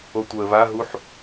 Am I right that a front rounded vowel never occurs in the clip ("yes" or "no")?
no